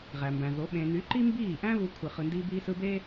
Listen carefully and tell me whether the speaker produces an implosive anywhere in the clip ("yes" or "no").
yes